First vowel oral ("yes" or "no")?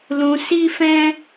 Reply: no